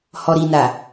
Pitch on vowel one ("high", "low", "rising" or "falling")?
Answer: low